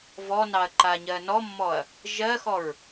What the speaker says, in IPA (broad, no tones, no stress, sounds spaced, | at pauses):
v ɔ n ɑ ɐ̯ ǃ a ɲ ɜ n ɔ mː ɔ ɐ̯ | ʒ ɜ x ɔ ɹ